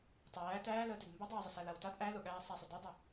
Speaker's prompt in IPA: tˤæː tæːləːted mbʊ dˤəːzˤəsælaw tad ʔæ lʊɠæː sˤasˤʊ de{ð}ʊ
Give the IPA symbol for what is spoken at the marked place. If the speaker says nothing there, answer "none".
dˤ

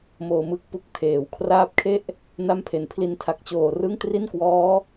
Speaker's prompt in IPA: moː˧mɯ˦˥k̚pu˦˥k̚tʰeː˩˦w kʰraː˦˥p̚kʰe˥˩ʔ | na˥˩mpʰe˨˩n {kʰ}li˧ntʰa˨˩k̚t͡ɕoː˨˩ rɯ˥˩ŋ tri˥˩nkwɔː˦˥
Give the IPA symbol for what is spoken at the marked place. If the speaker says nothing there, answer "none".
pʰ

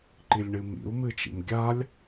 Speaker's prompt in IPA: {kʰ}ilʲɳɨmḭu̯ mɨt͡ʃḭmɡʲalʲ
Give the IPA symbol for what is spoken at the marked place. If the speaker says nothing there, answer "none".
ǃ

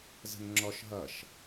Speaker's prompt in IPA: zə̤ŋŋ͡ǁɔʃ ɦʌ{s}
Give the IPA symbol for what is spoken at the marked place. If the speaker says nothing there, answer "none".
ʃ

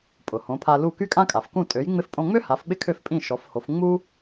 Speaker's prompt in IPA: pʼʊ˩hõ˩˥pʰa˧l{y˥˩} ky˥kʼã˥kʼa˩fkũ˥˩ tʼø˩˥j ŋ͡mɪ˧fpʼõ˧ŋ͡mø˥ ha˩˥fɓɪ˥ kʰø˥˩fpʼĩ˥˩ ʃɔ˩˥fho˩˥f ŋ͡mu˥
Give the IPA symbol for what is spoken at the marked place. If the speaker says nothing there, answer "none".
u˥˩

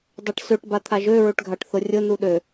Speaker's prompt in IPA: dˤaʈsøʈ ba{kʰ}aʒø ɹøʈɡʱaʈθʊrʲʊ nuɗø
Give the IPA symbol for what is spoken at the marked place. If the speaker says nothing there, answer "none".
t̪ʰ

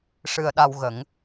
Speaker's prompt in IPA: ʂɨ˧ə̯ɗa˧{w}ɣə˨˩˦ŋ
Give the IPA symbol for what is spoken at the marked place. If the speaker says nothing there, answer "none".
w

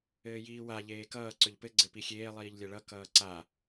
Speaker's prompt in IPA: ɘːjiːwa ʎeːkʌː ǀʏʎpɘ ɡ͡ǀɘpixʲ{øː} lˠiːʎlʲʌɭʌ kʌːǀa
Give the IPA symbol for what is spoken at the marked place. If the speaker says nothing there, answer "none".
eː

